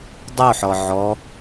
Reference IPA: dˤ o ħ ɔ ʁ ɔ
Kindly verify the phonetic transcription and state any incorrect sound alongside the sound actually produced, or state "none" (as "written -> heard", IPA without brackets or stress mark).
ʁ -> ʕ